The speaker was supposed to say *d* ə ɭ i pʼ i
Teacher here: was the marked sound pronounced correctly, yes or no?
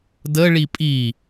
yes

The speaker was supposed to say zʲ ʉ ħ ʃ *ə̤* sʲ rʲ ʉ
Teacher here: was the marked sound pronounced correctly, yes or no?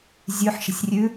yes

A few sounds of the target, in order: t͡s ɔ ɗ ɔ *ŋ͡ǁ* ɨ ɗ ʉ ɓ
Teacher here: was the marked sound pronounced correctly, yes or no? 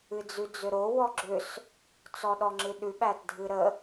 yes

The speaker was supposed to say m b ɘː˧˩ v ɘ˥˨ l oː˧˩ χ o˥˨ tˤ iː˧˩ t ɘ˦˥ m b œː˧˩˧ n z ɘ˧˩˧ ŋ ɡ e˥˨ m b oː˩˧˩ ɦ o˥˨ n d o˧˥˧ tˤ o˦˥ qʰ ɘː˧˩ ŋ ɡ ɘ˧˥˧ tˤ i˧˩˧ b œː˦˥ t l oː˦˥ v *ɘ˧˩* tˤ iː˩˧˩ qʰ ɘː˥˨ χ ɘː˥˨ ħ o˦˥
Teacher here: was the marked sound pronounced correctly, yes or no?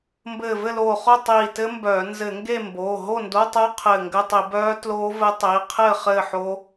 no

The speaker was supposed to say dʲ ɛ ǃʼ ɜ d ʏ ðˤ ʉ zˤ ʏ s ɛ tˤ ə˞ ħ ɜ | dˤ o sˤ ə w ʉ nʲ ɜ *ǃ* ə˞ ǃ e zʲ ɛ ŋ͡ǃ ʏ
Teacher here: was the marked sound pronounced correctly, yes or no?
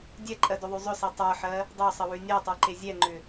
no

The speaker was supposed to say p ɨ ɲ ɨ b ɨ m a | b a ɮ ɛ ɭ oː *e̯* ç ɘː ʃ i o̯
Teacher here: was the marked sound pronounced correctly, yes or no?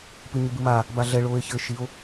yes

